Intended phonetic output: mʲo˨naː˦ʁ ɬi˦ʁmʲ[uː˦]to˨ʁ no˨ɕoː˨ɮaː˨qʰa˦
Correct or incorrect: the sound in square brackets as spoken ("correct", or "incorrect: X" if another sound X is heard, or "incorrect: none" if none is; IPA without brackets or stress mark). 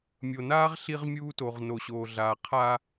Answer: correct